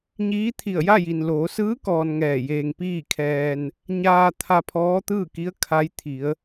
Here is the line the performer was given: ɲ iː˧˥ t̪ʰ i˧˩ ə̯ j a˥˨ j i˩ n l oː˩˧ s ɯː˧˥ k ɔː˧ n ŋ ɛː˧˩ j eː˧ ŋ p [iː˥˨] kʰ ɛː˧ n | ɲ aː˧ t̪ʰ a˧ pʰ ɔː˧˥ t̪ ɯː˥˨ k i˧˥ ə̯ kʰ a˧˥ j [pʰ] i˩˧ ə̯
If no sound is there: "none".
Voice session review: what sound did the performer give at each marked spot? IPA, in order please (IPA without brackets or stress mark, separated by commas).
iː˥˨, t̪ʰ